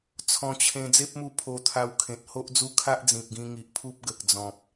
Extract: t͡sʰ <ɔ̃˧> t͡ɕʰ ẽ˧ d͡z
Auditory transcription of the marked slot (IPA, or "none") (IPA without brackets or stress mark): ɔ̃˧